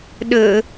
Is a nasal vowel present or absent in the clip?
absent